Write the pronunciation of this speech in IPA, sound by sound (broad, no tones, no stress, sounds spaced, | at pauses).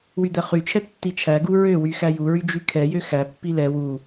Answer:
w y d̪ ɛ χ y t͡ʃʰ ɛ tː i t͡ʃʰ æ ɡ u ɹ ø w y x æ j u ɹ y d͡ʒ y kʰ ɛ j ø x æ pː i l ɛ w u